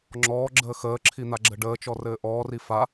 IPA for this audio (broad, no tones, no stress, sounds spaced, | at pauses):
ŋ͡ǁ ɔː ɡ͡ǁ əː x əː ǁʰ i n̪ a ɡ͡ǁ ə ɖ əː t͡ʃ ɔ r ɘː ʔ ɔː r i f a